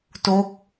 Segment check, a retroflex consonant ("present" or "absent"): absent